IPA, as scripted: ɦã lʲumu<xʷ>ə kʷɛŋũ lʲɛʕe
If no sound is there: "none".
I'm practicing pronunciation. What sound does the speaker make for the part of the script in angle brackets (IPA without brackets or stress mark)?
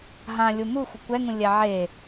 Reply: xʷ